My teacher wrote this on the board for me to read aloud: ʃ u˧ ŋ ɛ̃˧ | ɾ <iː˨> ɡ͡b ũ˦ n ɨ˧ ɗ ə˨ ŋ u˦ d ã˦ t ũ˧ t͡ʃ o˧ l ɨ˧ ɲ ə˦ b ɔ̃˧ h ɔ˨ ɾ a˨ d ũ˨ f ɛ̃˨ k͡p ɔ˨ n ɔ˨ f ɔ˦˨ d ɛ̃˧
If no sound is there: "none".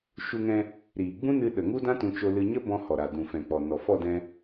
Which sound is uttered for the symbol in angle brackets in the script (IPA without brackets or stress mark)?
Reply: iː˨